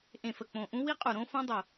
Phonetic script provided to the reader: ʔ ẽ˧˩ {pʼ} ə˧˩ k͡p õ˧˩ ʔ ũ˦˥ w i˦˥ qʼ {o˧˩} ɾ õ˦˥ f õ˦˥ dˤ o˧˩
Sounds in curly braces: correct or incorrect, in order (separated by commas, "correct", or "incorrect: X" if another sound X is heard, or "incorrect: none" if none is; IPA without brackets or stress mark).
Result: incorrect: f, incorrect: u˧˩